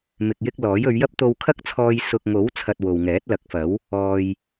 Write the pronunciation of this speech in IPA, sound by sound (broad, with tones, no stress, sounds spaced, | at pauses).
m ɪ˨ k̚ j ɪ˧ k̚ l ɔː˨˥ j ɵ˨˧ ɥ j ɐ˥ p̚ t̪ o˧ w kʰ ɐ˥ k̚ t͡sʰ ɔː˧ j s ʊ˨ k̚ ŋ o˨˥ w t͡sʰ ɐ˧ t̚ w o˨ w ŋ ɛː˨˥ t̚ l ɐ˨˥ k̚ f ɐ˨˥ w | ɔː˨ j